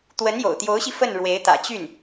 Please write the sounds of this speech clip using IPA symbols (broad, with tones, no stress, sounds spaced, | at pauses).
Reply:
t̪ w ə˧˥ n j o̰˨˩ ʊ̯ t̪ j o˧˥ ʊ̯ ɕ i˧ f ə˥˩ n ɻ w e˧˥ ɪ̯ t̪ ä̰˨˩ t͡ɕ y˥˩ n